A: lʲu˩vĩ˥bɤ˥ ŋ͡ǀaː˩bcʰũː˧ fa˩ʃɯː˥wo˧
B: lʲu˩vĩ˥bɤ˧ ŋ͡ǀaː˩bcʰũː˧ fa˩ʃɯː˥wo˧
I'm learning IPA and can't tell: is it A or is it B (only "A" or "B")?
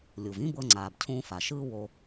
B